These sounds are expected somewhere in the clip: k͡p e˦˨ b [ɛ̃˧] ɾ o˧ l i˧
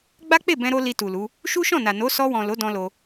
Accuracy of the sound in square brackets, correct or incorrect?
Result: correct